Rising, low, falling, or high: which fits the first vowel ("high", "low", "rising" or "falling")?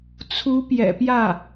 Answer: rising